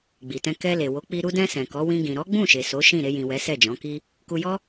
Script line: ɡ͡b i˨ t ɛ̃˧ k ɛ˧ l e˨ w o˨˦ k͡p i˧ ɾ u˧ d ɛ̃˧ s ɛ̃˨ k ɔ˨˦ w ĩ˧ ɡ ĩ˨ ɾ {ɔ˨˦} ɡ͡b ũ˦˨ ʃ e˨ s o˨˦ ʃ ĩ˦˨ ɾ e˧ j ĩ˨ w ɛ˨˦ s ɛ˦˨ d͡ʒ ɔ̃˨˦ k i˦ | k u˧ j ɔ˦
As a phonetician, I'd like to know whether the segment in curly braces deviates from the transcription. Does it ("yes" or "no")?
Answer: no